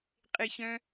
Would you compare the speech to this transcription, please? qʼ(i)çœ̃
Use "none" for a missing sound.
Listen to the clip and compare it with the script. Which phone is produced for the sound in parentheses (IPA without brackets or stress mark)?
ɪ